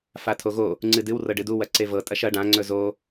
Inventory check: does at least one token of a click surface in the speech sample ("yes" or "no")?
yes